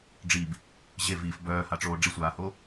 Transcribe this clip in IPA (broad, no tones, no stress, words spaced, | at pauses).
ɖ͡ʐib | ʑeviːf bœːhaʈ͡ʂoː ɖ͡ʐisʷaːho